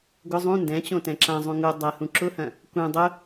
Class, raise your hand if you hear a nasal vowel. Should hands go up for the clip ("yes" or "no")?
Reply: yes